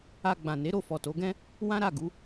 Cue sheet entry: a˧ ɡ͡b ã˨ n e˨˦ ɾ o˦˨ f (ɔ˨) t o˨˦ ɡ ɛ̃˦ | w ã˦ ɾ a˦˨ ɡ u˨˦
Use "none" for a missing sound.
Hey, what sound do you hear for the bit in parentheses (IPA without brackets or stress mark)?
ɔ˨